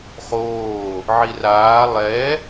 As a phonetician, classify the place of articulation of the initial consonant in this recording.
uvular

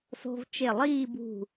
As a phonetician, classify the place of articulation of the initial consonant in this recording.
alveolar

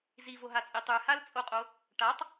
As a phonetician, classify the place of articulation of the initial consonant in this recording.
alveolar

